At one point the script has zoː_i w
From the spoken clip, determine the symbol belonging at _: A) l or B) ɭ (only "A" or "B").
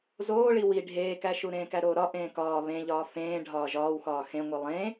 B